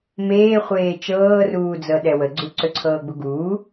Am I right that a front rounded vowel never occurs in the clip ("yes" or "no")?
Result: no